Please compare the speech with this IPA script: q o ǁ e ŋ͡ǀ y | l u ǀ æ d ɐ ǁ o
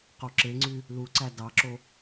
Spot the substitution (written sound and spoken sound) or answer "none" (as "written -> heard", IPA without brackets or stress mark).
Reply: ɐ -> ɑ